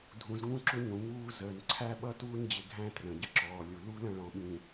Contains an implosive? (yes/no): yes